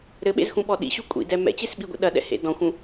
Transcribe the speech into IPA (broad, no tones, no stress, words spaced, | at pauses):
ɾɘɓḛzxũɓɔ ɗḭɕu kʷʼḭdɛ mɛ̰t͡ɕesɓiɡʷḭ ɗɐɗɛ̰hḛ dɔ̃xʷũ